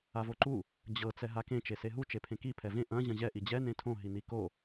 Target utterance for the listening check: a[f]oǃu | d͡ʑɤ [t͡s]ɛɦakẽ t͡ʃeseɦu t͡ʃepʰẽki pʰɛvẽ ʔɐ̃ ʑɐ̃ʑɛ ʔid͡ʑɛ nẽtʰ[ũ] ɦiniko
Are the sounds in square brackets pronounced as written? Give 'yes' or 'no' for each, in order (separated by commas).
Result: no, yes, no